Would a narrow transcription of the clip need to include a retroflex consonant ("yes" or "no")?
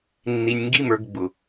no